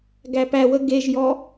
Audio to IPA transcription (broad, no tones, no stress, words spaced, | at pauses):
ɡæpæwə ɡeʒjɔ